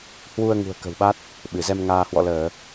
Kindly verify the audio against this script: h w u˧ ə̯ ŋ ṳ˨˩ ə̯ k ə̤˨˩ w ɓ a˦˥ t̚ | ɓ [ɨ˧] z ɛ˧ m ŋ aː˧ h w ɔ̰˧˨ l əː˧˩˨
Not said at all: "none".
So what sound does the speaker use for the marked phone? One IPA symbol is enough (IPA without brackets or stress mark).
ɨ˧˩